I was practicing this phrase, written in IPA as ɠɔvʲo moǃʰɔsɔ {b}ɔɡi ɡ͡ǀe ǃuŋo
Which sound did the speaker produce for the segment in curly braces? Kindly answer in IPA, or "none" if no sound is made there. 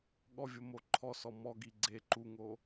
m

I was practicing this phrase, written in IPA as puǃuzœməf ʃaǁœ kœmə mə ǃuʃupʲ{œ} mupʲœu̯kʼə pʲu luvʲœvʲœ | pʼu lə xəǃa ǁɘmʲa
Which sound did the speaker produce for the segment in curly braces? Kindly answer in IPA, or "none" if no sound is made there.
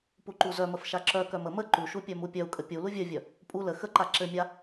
œ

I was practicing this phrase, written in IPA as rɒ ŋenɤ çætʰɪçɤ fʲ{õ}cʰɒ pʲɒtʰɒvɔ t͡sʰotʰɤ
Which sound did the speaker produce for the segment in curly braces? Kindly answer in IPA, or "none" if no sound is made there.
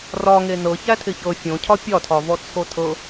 õ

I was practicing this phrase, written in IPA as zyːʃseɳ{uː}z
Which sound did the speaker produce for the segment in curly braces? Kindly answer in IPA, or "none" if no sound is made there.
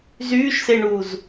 uː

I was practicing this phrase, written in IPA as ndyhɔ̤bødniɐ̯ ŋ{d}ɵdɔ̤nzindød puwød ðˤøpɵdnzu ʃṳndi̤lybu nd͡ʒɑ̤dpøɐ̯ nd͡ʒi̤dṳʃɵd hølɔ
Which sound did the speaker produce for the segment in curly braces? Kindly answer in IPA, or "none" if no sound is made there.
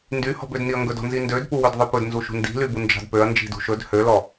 ɡ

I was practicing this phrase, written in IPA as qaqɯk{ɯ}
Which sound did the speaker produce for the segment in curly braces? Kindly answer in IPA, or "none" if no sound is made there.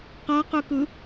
ɯ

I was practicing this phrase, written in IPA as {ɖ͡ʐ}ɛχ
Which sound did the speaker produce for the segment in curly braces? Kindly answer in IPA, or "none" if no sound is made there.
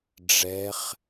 ɖ͡ʐ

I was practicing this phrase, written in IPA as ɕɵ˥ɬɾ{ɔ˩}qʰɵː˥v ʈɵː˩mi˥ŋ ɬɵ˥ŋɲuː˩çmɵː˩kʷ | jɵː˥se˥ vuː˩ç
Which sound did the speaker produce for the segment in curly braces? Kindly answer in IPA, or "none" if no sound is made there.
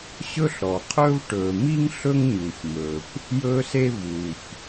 ɔ˩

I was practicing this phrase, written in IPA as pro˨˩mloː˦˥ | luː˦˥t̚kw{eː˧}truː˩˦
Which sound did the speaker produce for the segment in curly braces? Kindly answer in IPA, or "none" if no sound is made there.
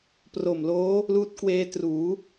eː˦˥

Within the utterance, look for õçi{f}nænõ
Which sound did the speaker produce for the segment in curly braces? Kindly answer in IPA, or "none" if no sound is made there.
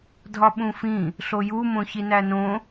none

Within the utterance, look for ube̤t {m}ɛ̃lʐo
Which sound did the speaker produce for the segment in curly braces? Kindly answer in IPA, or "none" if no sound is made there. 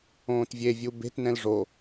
n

